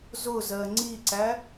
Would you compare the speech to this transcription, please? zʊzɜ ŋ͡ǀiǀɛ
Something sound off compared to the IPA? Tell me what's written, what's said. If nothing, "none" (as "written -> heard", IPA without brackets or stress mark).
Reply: ɛ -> æ